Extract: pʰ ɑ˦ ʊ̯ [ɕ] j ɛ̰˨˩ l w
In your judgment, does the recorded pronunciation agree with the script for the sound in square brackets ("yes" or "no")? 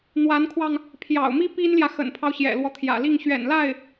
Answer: yes